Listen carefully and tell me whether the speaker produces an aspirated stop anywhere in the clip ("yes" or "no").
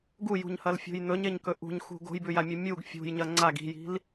no